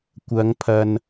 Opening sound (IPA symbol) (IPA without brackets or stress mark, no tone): kʷ